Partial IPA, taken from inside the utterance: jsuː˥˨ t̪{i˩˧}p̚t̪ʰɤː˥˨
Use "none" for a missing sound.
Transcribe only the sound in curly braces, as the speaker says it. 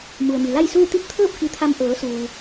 i˥˨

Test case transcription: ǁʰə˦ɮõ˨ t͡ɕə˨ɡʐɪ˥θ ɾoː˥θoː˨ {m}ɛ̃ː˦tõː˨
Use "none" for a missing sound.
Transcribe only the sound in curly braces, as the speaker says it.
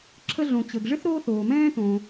m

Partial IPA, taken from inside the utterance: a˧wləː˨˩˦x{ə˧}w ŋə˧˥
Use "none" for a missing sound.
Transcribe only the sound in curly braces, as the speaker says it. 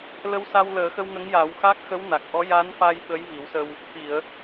ə˧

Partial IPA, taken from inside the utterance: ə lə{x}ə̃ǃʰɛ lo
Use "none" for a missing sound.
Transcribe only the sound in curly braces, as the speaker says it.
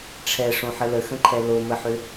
x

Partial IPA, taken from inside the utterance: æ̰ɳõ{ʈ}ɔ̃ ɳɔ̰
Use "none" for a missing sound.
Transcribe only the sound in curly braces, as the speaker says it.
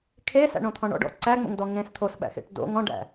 t̪ʰ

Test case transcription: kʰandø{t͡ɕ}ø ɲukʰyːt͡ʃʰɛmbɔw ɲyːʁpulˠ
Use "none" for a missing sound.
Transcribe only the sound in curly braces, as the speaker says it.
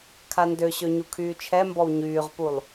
ɕ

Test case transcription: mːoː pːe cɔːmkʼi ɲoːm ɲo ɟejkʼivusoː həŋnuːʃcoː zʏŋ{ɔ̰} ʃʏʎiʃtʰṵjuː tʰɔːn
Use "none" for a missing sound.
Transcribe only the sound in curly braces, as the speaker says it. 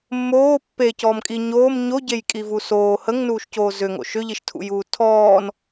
o̰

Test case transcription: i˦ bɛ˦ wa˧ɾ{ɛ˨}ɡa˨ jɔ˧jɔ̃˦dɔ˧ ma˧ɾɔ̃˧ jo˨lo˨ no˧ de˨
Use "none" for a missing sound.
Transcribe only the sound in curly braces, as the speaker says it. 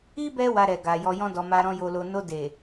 ɛ˨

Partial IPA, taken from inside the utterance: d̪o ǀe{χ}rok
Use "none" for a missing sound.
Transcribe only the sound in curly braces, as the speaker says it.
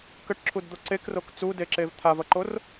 k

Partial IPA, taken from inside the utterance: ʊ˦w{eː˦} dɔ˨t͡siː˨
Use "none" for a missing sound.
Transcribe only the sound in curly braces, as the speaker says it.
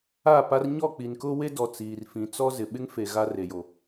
e˦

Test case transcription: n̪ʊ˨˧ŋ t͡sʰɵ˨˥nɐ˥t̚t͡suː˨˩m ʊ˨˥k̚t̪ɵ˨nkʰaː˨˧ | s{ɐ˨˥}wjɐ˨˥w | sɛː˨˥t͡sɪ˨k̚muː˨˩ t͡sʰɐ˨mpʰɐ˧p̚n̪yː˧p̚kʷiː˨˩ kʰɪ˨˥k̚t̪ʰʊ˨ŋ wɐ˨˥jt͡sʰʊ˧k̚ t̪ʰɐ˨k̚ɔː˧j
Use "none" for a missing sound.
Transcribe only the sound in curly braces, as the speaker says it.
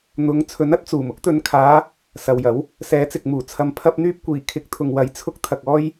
ɐ˨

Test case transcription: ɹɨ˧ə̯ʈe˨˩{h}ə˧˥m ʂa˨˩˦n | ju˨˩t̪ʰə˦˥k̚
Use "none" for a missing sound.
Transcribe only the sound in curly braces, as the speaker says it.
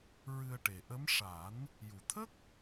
ʔ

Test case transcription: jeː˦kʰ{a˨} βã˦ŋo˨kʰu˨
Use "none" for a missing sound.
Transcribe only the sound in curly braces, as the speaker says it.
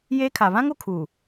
a˨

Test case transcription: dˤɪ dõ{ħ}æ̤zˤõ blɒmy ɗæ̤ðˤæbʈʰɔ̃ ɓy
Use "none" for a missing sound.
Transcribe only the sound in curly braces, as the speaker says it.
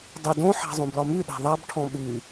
ħ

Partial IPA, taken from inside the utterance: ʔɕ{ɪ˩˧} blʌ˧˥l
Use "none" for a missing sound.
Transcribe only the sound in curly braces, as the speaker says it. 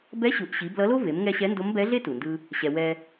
i˩˧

